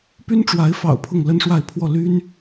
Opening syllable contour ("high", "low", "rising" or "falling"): high